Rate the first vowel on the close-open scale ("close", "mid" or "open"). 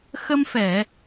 mid